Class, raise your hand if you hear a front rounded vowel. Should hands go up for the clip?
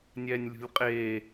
no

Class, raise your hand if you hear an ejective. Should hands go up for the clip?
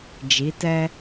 no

